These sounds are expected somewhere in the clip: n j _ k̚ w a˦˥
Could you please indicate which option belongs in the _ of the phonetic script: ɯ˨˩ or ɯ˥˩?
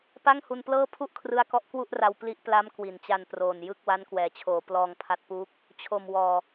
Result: ɯ˥˩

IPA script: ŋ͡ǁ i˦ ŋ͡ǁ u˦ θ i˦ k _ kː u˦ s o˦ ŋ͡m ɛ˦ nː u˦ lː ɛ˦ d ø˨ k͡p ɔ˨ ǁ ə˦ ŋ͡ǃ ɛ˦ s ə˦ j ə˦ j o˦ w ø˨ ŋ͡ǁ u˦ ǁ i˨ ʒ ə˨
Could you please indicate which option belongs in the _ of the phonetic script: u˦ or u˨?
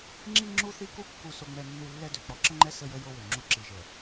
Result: u˦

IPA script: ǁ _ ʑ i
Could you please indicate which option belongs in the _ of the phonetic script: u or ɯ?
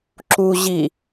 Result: u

